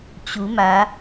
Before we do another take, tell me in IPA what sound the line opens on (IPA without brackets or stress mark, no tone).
t͡ɕ